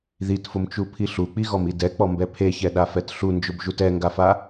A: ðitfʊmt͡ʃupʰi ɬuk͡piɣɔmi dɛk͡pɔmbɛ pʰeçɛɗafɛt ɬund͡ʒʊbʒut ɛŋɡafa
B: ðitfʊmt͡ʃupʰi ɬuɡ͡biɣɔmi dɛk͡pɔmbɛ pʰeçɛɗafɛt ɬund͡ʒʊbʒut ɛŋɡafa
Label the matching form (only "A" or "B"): A